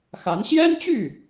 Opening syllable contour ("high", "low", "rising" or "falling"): rising